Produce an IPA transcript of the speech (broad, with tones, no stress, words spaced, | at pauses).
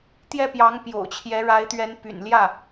t̪jɛ˥˩pjɑ˧˥ŋ pjo̰˨˩ʊ̯t͡ɕʰjɛ˧˥ɻa˧˥ɪ̯t̪ɥɛ˧˥n py̰˨˩nljä˥˩